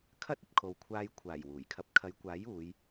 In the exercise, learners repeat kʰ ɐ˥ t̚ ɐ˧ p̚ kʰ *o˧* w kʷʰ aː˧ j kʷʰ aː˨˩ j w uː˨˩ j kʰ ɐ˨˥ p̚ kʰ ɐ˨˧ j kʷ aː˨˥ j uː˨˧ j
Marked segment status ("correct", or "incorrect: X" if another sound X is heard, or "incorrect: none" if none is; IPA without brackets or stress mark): incorrect: o˨